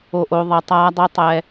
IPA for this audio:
o˨ ʔ o˨ ðˤ ɛ˨ tˤ aː˦ dˤ e˦ tˤ ɛ˦

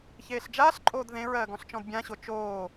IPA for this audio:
ç eː ɬ d͡ʒ aː ɬ ǃʼ oː d ð ẽ ɹ ɜː ɡ ɔ̃ ɬ t͡ʃ ɔ̃ d bʲ ã ɕ o t͡ʃ oː

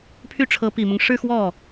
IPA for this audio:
pʰ y˥˩ ʈ͡ʂʰ ɤ˧˥ p i˨˩ m ʊ˦ ŋ ʂ ɻ̩˥˧ x w ɔ˥˩

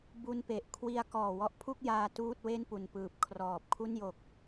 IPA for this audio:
b u˧ n p e˨˩ ʔ kʰ w i˧ a̯ k ɔː˨˩ w ɔ˦˥ ʔ pʰ u˥˩ k̚ j aː˧ t uː˥˩ t̚ w e˥˩ n p u˨˩ n p ɯː˨˩ p̚ kʰ r ɔː˨˩ p̚ kʰ u˥˩ n j o˨˩ k̚

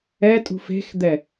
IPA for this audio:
ɛ tʼ ṳ f e̤ x d̪ ɛ

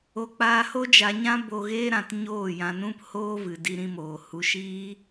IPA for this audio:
o˧ k͡p aː˧ h o˦ d͡ʒ a˧ ɲ ã˦ b o˧ ɣ eː˦ ɾ ã˨ t ɲ oː˦˨ j ã˧ n ũ˦ p h oː˦ v ɨ˨ d i˧ ɾ ĩ˧ m oː˨ h u˧ ʃ iː˦

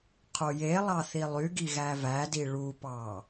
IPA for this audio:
qʰ o j e lˠ ɑ θ i lˠ y ɡ i ɣ æ v æ d i ɭ u p ɑ

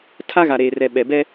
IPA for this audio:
tʰ a˦ ɣ a˨ ɾ eː˨ r ɛ˨ ɓ ɛ˨ b ɛ˦

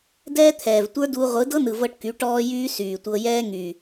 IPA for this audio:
d ɛː˦ t̪ʰ ɛː˨ v tʷ ə˞˦ d uː˧ ʁʷ ɯ˨˦ d ɤ˦ n ɯ˨ v ɤ˧ ʈ k y˨˦ ʈ ɔː˦ j yː˦ s yː˨ tʷ ɤ˧ j ɛː˦ ŋ y˨

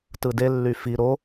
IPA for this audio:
t ɯ d e lː y f i ɾ o

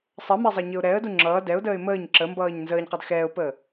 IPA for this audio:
sˤ ə m ɛ zˤ ʌ ɲ ə ʊ̯ ɾ ɛ ə̯ d u ŋ͡ǁ ʌː d ɛ ʊ̯ d əː ɪ̯ m əː ɲ ǁ ə m b ʌː ɲ n z əː ɲ q ʌ d x ɛː ʊ̯ p əː

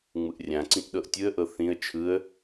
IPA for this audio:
ŋ͡m ɯ ʔ rʲ ã ǀ ĩ ʔ ɗ ɤ ʔ tʲ ɯ ə̯ ʔ ɤ θ ĩ ə̯ t͡ʃʰ ɯ ə̯

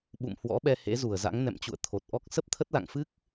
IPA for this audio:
ɓ ṵ˧˨ m h w ɔ̰˧˥ ɓ ɛ˧ h ḛ˧˥ z u˧˩ ə̯ z a̰˧˥ ŋ n ɛ̰˧˨ m t͡ɕ ṵ˧˨ ə̯ t̪ʰ o˨˩ t̚ ʔ ɔ˦˥ k̚ s ə˦˥ p̚ t̪ʰ ə˦˥ t̚ l a̰˧˨ ŋ f ɨ˦˥ k̚

